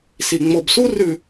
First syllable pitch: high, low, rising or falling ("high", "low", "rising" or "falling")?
low